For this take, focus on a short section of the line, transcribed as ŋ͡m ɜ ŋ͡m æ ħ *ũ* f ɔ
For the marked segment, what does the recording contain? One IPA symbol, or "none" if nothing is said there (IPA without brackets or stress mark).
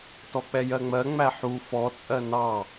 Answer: u